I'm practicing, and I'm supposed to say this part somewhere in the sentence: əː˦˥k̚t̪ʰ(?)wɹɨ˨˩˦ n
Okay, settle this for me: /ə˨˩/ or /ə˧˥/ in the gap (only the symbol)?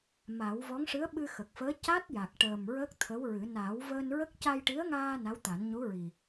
ə˧˥